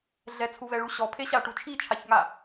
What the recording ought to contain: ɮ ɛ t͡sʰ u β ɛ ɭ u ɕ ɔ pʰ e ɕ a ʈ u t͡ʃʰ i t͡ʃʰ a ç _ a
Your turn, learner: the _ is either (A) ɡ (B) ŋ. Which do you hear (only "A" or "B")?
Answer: B